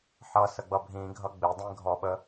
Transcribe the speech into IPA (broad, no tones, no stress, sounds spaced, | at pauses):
ħ ʌ s ə ɡ͡b ʌ bʱ ĩ ɡʱ ʌ ɡ͡b ɪ dˤ ĩ ɡʱ ɔ ɓ ə